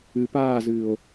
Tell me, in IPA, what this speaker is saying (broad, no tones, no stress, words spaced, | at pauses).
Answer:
ɨ paːzɨːo̯